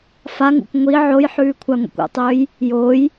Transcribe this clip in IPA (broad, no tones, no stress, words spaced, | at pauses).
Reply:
faŋṵkʷ ŋʷi ʕojħʉːkʷʰaŋʷḭkʷ o̰tˤɵːj | joːj